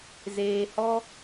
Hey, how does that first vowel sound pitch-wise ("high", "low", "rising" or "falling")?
low